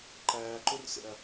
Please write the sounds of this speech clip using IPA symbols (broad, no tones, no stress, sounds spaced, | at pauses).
ǃ æː ǃ u r s ḛ ɐ̯